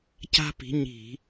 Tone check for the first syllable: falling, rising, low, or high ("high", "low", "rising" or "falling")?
high